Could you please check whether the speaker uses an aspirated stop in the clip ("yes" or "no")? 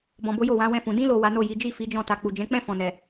no